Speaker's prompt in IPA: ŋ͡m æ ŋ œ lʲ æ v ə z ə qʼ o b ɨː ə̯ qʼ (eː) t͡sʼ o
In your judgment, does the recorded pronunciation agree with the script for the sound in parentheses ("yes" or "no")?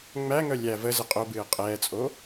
no